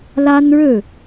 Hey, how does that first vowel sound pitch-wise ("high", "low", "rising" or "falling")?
high